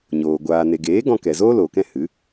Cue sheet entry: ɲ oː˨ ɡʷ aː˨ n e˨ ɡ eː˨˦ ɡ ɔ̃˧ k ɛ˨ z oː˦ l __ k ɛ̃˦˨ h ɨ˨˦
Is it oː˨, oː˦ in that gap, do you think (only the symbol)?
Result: oː˨